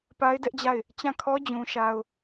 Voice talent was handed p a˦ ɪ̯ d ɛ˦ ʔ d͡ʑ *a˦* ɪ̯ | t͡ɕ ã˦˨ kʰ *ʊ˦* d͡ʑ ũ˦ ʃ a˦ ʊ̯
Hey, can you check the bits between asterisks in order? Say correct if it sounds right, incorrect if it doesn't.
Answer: incorrect: a˦˨, incorrect: ɔ˦

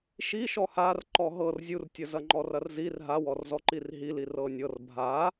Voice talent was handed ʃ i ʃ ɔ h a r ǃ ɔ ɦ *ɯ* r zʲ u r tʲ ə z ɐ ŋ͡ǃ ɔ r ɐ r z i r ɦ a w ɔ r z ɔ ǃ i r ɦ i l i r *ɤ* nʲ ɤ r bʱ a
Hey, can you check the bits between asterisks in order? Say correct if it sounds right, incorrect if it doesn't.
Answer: incorrect: ɤ, correct

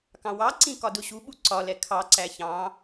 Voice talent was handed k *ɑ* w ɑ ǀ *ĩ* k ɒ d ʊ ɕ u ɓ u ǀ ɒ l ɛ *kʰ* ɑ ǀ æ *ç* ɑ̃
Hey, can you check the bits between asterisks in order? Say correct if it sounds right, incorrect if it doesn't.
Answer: incorrect: ɑ̃, correct, correct, correct

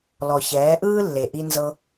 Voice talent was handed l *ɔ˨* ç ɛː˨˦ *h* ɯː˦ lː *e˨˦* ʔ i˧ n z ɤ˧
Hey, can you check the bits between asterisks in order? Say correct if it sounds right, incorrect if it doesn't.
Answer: correct, incorrect: ʔ, incorrect: e˨

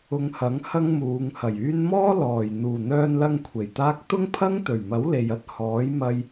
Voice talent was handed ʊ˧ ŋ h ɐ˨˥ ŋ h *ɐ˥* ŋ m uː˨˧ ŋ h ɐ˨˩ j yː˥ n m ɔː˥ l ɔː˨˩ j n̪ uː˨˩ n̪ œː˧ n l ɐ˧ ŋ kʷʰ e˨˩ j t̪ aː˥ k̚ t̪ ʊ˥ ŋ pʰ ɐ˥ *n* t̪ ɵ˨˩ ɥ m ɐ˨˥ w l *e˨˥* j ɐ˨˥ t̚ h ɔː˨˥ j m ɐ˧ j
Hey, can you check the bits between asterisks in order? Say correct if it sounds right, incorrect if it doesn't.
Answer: correct, incorrect: ŋ, incorrect: e˨

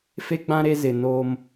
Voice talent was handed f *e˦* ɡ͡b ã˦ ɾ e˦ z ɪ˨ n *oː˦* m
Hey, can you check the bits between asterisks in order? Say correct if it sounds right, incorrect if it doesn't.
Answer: correct, correct

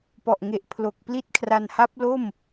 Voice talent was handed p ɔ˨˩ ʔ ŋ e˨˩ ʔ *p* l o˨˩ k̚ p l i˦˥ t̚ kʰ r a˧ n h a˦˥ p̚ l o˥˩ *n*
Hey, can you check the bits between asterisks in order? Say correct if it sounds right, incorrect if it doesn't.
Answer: incorrect: pʰ, incorrect: m

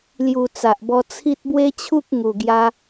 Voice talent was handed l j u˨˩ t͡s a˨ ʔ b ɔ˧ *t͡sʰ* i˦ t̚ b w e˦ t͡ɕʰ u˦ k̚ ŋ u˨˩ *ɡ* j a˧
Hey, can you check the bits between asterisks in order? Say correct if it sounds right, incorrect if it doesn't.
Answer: correct, correct

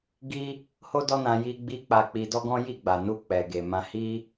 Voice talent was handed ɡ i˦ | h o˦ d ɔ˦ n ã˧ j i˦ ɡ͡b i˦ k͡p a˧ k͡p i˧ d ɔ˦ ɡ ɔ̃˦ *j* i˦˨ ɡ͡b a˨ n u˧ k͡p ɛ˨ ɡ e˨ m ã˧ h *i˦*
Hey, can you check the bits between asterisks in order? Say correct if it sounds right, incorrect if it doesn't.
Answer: correct, correct

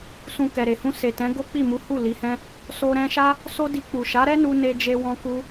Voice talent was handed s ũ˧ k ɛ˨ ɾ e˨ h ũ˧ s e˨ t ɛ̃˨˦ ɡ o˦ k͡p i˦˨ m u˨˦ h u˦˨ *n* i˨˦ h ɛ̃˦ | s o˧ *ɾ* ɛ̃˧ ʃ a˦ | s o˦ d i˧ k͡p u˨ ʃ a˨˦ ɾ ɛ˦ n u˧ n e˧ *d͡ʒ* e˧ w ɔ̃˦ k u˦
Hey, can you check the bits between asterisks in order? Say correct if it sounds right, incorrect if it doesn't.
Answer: incorrect: l, correct, correct

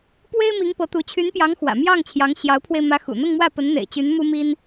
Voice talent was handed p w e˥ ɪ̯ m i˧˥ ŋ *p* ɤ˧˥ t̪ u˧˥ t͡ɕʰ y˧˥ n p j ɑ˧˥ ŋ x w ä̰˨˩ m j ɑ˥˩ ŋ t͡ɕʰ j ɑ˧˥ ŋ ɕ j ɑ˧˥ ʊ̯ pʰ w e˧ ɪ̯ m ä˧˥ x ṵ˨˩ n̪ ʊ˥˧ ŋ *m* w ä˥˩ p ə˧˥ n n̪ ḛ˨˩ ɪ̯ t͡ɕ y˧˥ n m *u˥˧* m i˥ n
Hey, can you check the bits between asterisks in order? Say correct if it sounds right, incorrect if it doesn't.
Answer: correct, correct, incorrect: u˥

